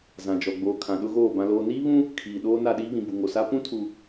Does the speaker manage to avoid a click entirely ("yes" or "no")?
yes